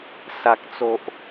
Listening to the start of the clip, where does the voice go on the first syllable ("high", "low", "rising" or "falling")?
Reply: low